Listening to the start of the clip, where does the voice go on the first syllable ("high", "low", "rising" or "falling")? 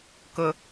high